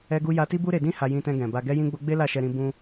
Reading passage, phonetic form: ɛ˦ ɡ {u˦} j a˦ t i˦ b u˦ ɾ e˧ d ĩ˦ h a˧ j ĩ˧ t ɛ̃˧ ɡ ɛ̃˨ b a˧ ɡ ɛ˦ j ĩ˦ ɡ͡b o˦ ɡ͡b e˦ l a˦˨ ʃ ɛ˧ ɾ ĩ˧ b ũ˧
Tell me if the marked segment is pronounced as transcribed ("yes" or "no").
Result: yes